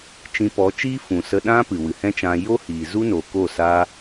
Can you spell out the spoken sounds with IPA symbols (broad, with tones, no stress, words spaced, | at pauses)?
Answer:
t͡ʃĩ˧pɔ˨˦t͡ʃiː˦ fũ˨sə˧ɗã˦ pɨ˨wɨ˨hɛ̃˦t͡ʃã˧ jo˦hiː˨ zu˦no˨ko˦˨ sa˦